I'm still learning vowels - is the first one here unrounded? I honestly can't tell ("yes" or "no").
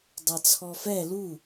yes